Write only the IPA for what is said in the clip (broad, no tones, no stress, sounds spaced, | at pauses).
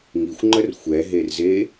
ŋ i xʷ ŋ͡ǃ ə r xʷ ɛ ɦ e r z e